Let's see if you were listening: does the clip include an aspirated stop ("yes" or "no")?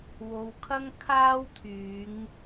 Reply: yes